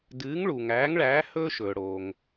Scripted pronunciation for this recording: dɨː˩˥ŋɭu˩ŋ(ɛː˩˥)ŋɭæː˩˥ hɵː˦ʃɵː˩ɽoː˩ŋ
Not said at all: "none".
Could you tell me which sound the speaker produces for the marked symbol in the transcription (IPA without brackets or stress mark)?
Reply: æː˩˥